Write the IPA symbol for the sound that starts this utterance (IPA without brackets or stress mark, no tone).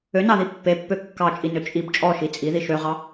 ø